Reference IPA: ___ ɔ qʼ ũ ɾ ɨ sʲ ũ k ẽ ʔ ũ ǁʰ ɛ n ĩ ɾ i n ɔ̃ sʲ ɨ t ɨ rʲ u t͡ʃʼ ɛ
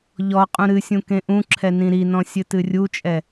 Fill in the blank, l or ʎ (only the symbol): ʎ